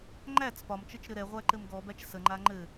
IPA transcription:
ŋ͡ǃ æ t͡s p ɒ m t͡ʃ ə t͡ʃ ɾ ɘ ɾ ɛ ʁʷ æ ǃ ɘ m ɡ ɔ b æ t͡ʃ s ə ŋ͡ǃ a ŋ͡ǃ ɘ

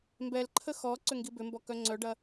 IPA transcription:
m b ɛ l ǃʰ ə x ɔ ǀ ʏ ŋ ɡ i b ʏ m b ɔ k œ ŋ͡ǀ œ ɖ ɐ

